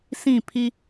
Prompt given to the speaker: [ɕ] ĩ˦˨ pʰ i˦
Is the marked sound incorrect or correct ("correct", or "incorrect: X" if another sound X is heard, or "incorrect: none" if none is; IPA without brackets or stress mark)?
incorrect: s